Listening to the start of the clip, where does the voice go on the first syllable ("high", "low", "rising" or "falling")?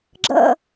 falling